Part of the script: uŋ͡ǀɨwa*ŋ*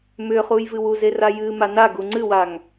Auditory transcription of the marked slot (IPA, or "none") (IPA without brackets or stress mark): ŋ